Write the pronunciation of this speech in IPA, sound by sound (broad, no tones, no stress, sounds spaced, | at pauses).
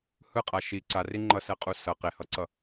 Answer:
h ɯ qʼ a ʃ i ǀ a r i ŋ͡ǃ ʌ s ɛ qʼ u s ʌ q e h ʌ ǀ ʌ